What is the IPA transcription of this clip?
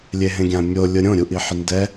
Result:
lʲ e ɦ ẽ ɡʲ ã mʲ o lʲ ʊ ɾʲ õ ɾʲ u ʔ i ħ ɪ n d ɛ

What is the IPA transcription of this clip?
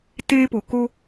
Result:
t eː˦ p o˨ k o˦

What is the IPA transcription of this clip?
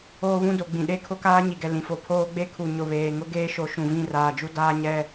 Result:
oː˦ β ũ˦ d o˨ ɡ͡b ĩ˨ ɗ e˦ kʰ ʊ˦ k aː˦ ɲ i˨ ɡ ɛ˨ l ĩ˨ f o˨ pʰ oː˦ ɡ͡b e˦ kʰ u˨ ɲ ʊ˨ β eː˨ ŋ ʊ˦ ɡ eː˦ ʃ o˨˦ ʃ ũ˨ v ĩ˦˨ r aː˨ d͡ʒ u˦ d aː˦ ɲ ɛ˦

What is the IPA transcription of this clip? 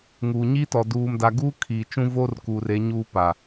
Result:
ŋ uː˨ ɲ i˦ t ɔ˨ d uː˨ m d a˨ ɡ uː˦ kʰ iː˨ t͡ʃ ũ˦ v o˦ r k uː˨ r e˨˦ ɲ uː˦ p a˨

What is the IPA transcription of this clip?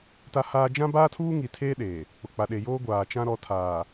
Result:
t a˦ h aː˦ d͡ʒ ã˦ b aː˦ tʰ uː˦ ŋ i˨ tʰ eː˦ ɗ eː˨ | k͡p ʊ˨ k͡p a˨ ɗ e˨ j oː˦ ɡʷ aː˨ t͡ʃ ã˦ ɾ ɔ˨ tʰ aː˨

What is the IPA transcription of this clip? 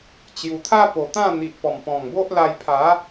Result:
t͡ɕ j u˨˩ t̪ʰ a˦ p o˨˩ t̪ ã˥˧ n̪ i˨ ʔ p ɔ˨˩ m p ɔ̃˨˩ ŋ b o˦ ʔ l a˧ j pʰ a˨˦

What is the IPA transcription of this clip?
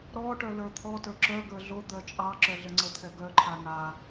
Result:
ɾ ɔ ʈ œ l ə˞ t̪ʰ ɔ t ə˞ ǁ œ ɡ ə˞ ɮ o d̪ œ t͡ʃʼ ɑ ǁ œ ɮ ə ŋ͡ǀ ə t̪ʰ ɛ ɡ œ ǃʰ a n a

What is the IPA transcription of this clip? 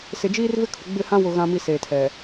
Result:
s ɪ˨ d͡ʒ iː˦ r v ɪ˦ kʰ ʊ˨ ɡ͡b ɪ˦˨ h ã˦ w ʊ˨ ɣ ã˨ m i˨ s eː˨ tʰ ɛ˨

